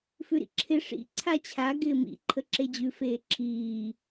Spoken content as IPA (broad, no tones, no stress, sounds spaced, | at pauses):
f ʉ ɾ ḭ ǁʰ ɪ ʂ ḭ ǀʰ a t͡ɕʰ a ɡ ɪː m ḭ ǃʰ ə ǁ e d͡ʑ ʉ f eː ǁʰ iː